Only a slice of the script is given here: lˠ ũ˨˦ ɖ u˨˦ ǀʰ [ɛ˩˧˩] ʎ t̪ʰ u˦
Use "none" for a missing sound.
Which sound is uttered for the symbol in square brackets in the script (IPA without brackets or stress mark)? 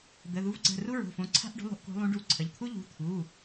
ə˩˧˩